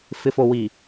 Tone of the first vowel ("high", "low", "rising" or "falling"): low